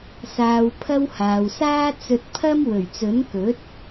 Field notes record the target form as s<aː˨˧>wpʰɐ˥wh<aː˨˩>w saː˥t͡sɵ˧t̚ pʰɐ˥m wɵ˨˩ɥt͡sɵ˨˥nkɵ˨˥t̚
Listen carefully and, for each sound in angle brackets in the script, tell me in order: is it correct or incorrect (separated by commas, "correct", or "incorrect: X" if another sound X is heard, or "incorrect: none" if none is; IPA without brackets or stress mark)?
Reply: incorrect: aː˧, incorrect: aː˨